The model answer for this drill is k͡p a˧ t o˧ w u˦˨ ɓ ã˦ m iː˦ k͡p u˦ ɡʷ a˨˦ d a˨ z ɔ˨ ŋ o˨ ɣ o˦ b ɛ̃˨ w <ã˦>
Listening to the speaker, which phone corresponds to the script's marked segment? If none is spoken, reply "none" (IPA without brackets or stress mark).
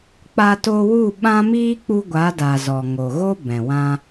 ã˦